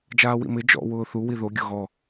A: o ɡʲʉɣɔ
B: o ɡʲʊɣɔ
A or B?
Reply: B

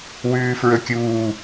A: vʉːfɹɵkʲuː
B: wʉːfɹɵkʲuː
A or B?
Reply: B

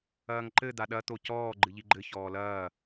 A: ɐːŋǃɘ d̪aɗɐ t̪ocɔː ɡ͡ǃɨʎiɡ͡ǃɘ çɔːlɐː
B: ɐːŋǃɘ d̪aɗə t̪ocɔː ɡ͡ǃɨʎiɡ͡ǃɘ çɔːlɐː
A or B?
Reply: A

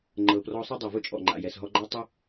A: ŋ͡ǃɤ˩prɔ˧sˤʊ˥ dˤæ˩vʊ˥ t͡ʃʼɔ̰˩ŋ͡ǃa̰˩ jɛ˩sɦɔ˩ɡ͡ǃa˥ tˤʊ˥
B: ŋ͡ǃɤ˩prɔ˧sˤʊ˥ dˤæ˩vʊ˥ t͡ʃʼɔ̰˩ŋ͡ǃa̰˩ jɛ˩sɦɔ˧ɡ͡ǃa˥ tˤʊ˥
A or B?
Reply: B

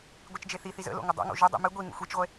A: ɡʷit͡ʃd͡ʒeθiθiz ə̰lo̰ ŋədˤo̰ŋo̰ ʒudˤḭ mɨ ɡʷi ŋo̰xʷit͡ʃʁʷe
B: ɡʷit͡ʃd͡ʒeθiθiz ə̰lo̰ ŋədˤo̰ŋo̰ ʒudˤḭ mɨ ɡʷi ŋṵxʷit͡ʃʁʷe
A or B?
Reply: B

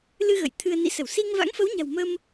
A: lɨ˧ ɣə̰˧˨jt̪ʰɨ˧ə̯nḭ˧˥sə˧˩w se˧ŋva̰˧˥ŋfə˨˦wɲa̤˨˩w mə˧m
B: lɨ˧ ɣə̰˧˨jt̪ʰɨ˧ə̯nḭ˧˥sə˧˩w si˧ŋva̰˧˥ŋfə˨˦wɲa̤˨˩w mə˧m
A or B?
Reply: B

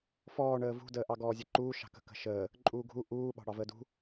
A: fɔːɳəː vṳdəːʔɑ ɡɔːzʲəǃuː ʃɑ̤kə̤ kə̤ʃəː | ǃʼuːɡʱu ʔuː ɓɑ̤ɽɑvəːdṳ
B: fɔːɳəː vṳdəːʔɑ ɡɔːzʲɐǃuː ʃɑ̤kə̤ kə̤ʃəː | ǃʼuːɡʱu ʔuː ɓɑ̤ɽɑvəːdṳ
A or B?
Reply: A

